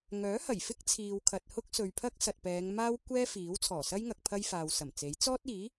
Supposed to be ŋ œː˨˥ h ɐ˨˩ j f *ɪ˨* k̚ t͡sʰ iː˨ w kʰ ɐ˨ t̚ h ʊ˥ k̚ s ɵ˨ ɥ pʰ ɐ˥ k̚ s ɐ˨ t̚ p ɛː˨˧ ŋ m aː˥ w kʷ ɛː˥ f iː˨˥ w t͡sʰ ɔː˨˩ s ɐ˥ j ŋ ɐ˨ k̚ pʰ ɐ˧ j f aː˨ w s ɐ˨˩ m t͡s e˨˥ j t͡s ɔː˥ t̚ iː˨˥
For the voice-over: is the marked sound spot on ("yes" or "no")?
no